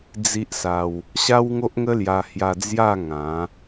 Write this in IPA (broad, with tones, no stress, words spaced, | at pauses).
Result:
d͡zi˦ʔsa˧w | ɕa˦wŋo˦ʔŋə˦lja˧ hja˧d͡zja˥˧ ŋã˨˦